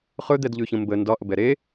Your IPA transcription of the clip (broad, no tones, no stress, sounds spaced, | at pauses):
χ ɵ d̪ ɛ d ʎ ʉ ç ə̃ m b ə n d ɒ ʔ ə b ɛ ɾ e